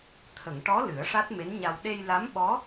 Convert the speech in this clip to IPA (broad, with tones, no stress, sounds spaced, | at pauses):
t̪ʰ ə˨˩˨ ŋ ʈ ɔ˧˥ l ɨ˨˩˦ ə̯ ʂ a˦˥ t̚ m e˧˥ n ɲ a˧ w ɗ e˧ j l a˧˥ m ɓ ɔ˧˥